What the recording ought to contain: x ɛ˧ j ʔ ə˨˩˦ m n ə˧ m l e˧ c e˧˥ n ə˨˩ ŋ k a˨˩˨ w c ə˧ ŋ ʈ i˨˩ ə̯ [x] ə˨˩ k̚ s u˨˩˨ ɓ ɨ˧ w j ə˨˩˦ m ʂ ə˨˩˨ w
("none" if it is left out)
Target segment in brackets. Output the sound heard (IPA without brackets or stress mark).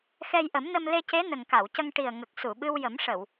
ŋ